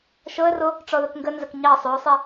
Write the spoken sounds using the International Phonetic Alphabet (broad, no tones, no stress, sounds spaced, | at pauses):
ʃ ɤ ə̯ r o | ʈ͡ʂ ɔ ð ə k ŋ ɡ ə n z ə k ɲ ɑ sˤ ɵ ʊ̯ sˤ ɛ